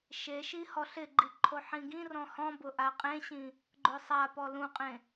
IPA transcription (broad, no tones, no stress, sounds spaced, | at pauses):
ʃ e ʃ i h ɔ ɬ ɪ ɡ͡ǃ i ǃʰ o ħ ĩ ɡ ĩ r ɔ̃ h ɔ̃ b ʊ ʔ a qʼ ẽ ɕ ĩ | ɡ͡ǃ ʊ sˤ a p ɔ l ũ qʼ ẽ